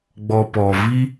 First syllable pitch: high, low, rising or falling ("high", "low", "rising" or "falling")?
low